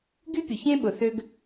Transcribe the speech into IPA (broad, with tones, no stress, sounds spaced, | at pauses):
ɡ y˥ pʲ ʊ˩ ç ẽ˥ ɓ ʊ˩ θ ø˥ ɡ